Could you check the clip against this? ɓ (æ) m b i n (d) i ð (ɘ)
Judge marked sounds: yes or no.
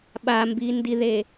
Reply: no, yes, no

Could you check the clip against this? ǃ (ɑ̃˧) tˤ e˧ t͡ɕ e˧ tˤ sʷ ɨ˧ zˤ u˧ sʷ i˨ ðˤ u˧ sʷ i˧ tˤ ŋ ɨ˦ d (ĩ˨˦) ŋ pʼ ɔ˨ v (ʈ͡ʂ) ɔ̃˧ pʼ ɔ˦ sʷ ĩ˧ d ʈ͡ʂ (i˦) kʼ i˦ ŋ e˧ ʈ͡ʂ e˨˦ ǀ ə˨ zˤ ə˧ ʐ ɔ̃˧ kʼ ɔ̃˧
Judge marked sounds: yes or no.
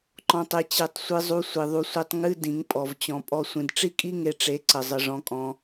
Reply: no, yes, no, yes

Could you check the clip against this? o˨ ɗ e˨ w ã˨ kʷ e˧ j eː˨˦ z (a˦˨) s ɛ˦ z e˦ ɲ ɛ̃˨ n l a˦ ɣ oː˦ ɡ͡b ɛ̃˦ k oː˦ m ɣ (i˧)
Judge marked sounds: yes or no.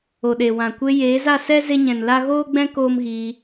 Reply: yes, yes

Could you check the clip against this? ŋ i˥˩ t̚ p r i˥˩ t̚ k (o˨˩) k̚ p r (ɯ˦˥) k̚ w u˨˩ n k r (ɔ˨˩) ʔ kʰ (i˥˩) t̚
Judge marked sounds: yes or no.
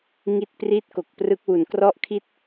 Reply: yes, yes, no, no

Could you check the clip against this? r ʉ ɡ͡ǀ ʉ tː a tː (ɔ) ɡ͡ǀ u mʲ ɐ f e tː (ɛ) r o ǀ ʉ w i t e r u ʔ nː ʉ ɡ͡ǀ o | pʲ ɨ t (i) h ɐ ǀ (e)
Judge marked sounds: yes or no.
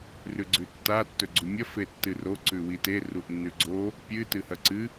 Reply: no, no, no, no

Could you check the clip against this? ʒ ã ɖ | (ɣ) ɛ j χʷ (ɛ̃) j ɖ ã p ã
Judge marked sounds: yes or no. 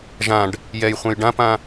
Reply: no, yes

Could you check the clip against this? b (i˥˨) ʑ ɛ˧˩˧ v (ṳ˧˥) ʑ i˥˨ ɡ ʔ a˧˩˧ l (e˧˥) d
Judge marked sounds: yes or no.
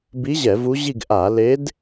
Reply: no, no, yes

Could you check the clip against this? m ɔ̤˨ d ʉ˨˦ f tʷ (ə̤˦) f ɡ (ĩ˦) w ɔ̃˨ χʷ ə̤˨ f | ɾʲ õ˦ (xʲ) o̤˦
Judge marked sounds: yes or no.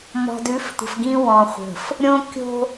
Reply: no, yes, no

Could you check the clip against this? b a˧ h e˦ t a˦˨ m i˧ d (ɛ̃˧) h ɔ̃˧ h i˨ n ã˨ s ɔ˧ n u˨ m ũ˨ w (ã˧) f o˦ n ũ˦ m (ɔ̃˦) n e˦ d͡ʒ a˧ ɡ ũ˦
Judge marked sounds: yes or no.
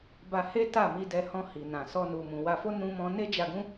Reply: no, no, yes

